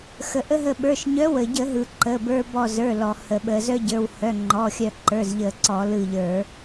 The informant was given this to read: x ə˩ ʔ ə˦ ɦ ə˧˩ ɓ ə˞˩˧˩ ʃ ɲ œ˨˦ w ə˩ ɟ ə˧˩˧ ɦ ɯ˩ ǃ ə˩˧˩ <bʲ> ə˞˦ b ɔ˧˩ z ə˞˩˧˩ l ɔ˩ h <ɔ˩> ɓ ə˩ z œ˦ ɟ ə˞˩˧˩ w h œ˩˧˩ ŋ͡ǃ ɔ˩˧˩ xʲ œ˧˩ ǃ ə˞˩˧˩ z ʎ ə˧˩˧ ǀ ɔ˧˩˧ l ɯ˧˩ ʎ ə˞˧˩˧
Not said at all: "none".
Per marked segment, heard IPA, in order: b, ə˩

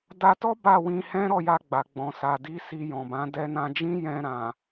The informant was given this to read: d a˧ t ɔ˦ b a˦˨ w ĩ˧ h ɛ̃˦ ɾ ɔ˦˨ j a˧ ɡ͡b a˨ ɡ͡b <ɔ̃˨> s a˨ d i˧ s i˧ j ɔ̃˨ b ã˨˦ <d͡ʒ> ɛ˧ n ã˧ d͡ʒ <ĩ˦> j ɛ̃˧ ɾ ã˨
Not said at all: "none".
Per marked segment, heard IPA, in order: ɔ̃˨, d, ĩ˦

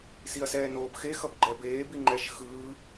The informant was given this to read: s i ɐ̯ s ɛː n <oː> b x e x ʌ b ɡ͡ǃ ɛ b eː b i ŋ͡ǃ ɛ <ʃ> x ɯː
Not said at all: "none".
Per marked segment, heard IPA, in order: oː, ʃ

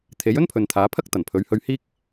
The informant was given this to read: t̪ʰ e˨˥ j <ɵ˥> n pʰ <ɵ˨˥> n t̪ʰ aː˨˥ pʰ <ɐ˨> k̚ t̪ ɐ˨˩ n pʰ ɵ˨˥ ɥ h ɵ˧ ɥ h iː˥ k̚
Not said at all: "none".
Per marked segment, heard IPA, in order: ɵ˥, ɵ˨, ɐ˥

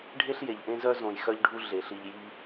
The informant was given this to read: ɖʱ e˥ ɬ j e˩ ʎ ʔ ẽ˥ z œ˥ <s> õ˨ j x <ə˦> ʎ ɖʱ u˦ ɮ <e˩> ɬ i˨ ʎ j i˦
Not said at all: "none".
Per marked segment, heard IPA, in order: z, œ˦, e˩

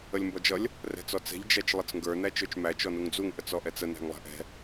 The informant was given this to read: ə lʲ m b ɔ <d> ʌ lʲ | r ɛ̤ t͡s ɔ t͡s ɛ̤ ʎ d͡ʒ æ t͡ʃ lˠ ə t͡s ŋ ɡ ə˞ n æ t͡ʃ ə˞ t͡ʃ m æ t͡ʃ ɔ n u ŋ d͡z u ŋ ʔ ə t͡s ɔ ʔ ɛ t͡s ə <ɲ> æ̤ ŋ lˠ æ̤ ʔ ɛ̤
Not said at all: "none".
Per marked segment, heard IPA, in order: d͡ʒ, n

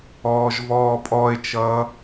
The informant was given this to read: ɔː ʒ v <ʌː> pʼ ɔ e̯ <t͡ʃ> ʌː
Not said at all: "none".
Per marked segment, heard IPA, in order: ɔː, t͡ʃ

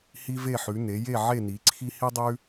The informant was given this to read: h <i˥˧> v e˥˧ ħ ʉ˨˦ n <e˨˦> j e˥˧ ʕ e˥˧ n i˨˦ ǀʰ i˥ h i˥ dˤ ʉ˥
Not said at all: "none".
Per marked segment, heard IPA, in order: i˥, e˨˦

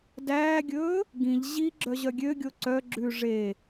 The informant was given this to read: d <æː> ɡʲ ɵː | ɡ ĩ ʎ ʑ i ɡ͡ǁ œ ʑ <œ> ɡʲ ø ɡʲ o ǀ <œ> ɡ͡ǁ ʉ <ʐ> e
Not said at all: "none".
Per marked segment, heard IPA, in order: æː, œ, œ, ʐ

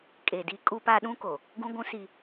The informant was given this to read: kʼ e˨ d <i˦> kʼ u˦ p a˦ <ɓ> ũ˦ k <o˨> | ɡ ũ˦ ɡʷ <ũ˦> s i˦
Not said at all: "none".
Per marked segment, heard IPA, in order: i˦, ɗ, o˨, ũ˦

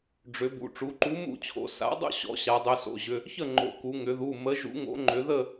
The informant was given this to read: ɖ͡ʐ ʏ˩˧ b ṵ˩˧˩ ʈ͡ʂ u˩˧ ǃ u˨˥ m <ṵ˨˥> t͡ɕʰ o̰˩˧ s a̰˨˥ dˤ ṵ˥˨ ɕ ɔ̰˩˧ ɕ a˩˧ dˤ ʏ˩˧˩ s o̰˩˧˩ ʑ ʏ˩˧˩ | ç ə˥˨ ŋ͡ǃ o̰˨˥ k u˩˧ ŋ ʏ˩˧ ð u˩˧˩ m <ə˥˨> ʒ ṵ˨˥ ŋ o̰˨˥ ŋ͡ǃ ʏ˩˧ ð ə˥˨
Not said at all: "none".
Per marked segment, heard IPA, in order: ṵ˥˨, ə˨˥

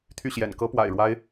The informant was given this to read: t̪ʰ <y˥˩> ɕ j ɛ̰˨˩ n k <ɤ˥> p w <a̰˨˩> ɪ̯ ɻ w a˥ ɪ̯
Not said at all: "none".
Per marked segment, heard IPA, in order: y˥˩, ɤ˥, a̰˨˩

